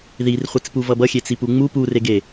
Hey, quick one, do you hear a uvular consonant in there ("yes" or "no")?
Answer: yes